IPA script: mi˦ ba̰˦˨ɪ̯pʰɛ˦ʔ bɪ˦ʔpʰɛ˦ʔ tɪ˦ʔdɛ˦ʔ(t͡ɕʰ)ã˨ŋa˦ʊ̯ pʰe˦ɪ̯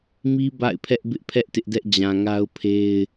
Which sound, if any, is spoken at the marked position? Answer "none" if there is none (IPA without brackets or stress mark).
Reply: d͡ʑ